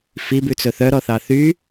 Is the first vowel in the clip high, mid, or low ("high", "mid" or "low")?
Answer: high